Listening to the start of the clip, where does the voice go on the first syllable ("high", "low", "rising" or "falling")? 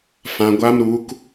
low